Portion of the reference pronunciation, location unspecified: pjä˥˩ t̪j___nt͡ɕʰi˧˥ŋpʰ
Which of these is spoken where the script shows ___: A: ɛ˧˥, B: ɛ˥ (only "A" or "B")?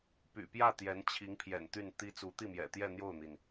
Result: A